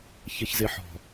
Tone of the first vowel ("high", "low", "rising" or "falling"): low